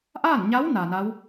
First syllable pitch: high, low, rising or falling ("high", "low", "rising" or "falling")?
falling